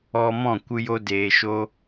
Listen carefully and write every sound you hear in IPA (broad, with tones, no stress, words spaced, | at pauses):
ɔ˧mɔ̃˦˨ kʷɨ˧jo˧ deː˨ʃo˧